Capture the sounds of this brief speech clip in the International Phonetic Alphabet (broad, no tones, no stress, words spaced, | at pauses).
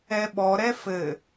ɛɓɔ ɾɛfɘ